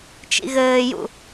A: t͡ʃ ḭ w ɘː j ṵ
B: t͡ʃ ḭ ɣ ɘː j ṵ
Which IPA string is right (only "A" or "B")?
B